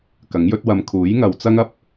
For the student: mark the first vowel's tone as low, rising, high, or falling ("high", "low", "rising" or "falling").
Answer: rising